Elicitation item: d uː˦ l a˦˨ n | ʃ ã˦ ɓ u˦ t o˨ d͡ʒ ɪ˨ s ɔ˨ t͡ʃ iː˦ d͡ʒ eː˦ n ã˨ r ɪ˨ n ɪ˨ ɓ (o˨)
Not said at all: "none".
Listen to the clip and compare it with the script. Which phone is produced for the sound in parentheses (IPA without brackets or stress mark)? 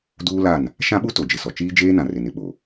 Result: o˨